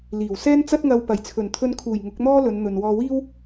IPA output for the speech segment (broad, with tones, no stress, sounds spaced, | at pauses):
l iː˨˩ w s ɛː˥ n t͡s ɐ˥ t̚ ŋ ɐ˧ w p ɐ˨˩ j t͡sʰ ɵ˨˩ n t̪ʰ ɵ˧ n kʰ uː˨˩ j ŋ ʊ˨˥ k̚ n̪ ɔː˥ l ɵ˨˧ n n̪ ɵ˨ n w ɔː˧ w iː˥ w